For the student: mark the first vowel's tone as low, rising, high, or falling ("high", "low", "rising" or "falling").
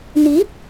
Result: rising